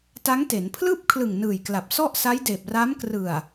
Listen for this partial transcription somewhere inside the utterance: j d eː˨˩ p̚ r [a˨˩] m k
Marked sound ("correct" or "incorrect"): incorrect